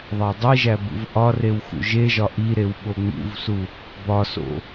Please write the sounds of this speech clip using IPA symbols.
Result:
ðˤ æ dˤ i ʒ æ b ṵ v ʔ ɒ r e w x ṵ ʒ e ʒ ɒ ʔ i ɾ e w ɓ o ŋ͡m ṵ v s u | b ɒ s o̰

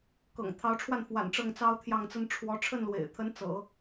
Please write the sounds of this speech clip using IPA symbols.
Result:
k ɤ̰˨˩ ŋ t̪ʰ ɑ˧˥ ʊ̯ ʈ͡ʂʰ w a˥˩ n f w a̰˨˩ n ʈ͡ʂ ɤ˥˩ ŋ t͡s ɑ˥ ʊ̯ t̪ʰ j ɑ˥˩ ŋ t͡s ə˥ n ʈ͡ʂʰ w ɔ˧˥ ʈ͡ʂʰ ə˥˩ n l w ḛ˨˩ ɪ̯ t̪ʰ ə˧˥ n t͡s ɤ̰˨˩˦

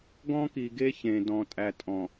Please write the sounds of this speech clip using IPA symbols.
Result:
ɡ ɔ̃˦ k i˨ ɡ e˦ ç ẽ˨ d ɔ̃˨ tʼ æ˨ tʼ ɔ̃˨

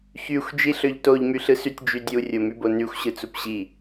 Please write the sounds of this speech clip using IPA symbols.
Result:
ç y xʷ d͡ʒ i ɬ ø ʎ t o ʎ m y ɬ ɯ s y tʲ d͡ʒ y dʲ u rʲ o m y b o n y xʷ ɕ ɯ t͡s u p ɕ i

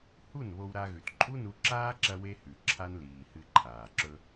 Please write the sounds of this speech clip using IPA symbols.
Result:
h u˦˨ n β o˧ w ɾ a˧ ɣ ʉ˨ t ǃʼ u˦ n u˧ ǁ aː˦ ǁ ɐ˧ w e˦ h ʉ˨ ǁʰ a˦ n l iː˨ h ɨ˧ ǃʰ aː˨ ǁ ɵ˦

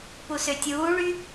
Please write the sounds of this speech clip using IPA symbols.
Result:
p u s ø tʲ uː ɭ y

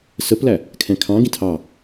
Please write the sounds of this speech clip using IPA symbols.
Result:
s ə p l æ | kʰ ɛ̃ kʰ ɑ̃ ɡ ĩ tʰ ɑ

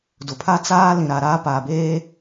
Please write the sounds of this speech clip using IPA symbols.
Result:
d ʊ˨ pʰ a˦ t͡s aː˦ l ĩ˨ ɾ a˨ ɾ aː˦ p aː˨ b eː˦

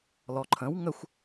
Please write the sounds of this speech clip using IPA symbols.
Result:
l ɔ ǃʰ ə̃ w ŋ ə xʷ

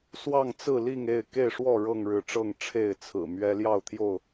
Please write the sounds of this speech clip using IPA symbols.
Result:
s w ɑ˥˨ ŋ t͡s ɹ̩˥˨ l i˥˨ ŋ e˥˨ ɪ̯ k e˥˨ ɪ̯ ʂ w ɔ˥˨ ɻ ɤ˥˨ ŋ ɻ ɻ̩˨˦ ʈ͡ʂ ɤ˥˨ ŋ ʈ͡ʂʰ e˥˨ ɪ̯ t͡sʰ ɹ̩˨˩ m ɥ ɛ˦ l j ɑ˥˨ ʊ̯ t̪ʰ j o˥˨ ʊ̯

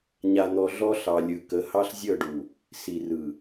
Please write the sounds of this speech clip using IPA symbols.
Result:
ɲ a˨ n̪ ɔ˨ ɮ ɔ˦ ɬ ɑ˨ lʲ ɯ˨ k ə˨˦ h ɑ˦ ɬ zʲ ɤ˦˨ ɖ u˨ | s i˨ r ɯ˨

